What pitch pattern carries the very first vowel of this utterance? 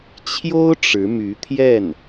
high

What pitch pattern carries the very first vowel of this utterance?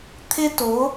high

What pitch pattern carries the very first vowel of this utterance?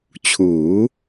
rising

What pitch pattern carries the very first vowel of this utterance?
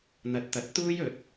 rising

